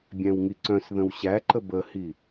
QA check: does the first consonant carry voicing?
yes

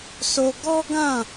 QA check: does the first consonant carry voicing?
no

